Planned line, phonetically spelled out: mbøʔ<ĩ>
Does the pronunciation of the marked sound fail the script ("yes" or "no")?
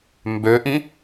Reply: no